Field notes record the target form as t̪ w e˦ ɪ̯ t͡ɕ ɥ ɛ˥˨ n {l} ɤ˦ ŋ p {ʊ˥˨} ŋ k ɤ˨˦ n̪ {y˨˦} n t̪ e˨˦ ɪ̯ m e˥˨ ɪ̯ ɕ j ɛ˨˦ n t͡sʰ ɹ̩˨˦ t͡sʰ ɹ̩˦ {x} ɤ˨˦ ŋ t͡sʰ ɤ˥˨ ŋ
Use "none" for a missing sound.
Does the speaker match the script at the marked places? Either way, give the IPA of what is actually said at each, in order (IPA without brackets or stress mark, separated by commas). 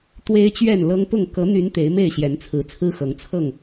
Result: l, ʊ˥˨, y˨˦, x